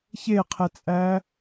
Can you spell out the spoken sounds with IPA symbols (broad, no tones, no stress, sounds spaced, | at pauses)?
ç e qʰ ɛ t͡sʼ æ